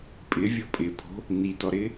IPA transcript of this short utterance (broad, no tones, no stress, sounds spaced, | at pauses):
pʼ ɪ vʲ ɔ pʼ ɪ pʰ o̤ | n i t ɔ ɾ ɪ